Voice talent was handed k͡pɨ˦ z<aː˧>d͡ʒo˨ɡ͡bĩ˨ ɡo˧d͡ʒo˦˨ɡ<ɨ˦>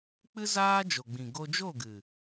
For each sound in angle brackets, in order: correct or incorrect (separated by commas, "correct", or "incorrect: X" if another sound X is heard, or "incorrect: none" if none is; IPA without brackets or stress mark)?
incorrect: aː˦, incorrect: ɨ˨